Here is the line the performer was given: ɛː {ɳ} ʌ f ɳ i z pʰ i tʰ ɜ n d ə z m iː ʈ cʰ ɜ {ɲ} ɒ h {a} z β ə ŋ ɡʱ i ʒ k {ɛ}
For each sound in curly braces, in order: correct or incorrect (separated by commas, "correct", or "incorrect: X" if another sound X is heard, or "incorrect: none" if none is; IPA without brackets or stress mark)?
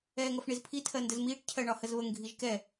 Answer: incorrect: ŋ, incorrect: ɳ, incorrect: ə, correct